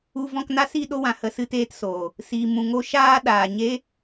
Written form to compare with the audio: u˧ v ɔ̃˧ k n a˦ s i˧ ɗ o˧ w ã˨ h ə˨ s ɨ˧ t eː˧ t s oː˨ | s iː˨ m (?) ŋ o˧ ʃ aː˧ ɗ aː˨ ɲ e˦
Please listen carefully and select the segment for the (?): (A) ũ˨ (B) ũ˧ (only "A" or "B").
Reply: A